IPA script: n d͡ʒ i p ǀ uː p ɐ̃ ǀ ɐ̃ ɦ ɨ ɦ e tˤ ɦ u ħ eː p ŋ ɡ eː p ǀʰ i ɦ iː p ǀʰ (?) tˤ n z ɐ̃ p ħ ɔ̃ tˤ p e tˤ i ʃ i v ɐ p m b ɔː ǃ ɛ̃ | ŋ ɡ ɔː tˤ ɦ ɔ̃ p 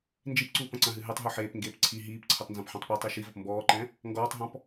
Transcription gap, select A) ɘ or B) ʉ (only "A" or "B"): A